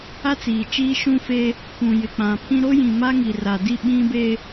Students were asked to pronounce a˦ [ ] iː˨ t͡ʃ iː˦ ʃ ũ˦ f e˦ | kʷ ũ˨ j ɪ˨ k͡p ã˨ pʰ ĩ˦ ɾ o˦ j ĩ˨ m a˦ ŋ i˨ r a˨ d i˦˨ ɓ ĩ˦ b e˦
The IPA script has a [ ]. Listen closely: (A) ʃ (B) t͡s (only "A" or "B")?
B